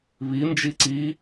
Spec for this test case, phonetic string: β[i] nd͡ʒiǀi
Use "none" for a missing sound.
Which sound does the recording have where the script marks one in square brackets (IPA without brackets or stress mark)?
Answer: i